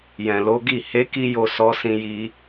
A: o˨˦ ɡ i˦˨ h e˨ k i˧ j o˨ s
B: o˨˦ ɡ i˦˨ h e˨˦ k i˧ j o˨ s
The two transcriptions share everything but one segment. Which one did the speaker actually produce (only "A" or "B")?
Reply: B